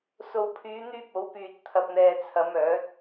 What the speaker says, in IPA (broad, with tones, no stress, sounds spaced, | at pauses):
s o˨ w pʰ yː˨˧ n̪ yː˧ p̚ o˨˥ w p yː˨ t̚ t̪ʰ ɐ˨ p̚ n̪ ɛː˨ t͡sʰ ɐ˨˧ m œː˨˥ t̚